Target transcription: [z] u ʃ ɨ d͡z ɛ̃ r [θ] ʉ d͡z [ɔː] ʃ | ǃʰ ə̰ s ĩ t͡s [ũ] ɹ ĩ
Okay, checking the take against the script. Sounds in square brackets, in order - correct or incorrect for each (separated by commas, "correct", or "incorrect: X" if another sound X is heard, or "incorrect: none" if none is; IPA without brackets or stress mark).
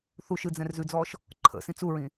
incorrect: θ, incorrect: z, correct, incorrect: u